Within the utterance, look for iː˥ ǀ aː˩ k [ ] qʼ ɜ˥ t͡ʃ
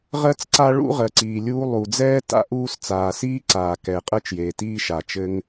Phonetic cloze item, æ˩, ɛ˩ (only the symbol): ɛ˩